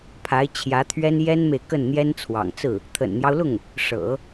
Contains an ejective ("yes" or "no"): no